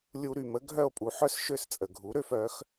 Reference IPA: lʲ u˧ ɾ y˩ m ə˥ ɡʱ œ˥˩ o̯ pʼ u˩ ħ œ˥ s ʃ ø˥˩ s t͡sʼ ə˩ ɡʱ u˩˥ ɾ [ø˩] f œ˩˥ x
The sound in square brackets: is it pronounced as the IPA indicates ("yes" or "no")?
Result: no